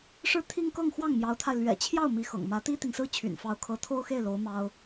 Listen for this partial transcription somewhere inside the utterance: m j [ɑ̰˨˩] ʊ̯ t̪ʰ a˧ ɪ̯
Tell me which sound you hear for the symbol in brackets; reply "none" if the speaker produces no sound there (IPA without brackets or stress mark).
ɑ˧˥